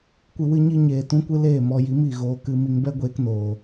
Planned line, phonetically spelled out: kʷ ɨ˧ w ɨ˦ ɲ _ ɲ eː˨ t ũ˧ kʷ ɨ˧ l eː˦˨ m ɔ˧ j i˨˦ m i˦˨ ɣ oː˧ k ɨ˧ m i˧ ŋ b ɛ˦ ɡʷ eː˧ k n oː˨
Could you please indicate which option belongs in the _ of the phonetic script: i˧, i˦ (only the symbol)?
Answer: i˦